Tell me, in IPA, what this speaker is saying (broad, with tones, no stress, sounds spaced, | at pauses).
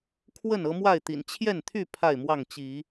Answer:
kʰ w ə˥˨ n ɤ˦ m w a˥˨ ɪ̯ t̪ ḭ˨˩ n t͡ɕʰ j ɛ˥˨ n t̪ʰ y˥˨ pʰ a˥˨ ɪ̯ m w ɑ˥˨ ŋ t͡ɕ i˨˦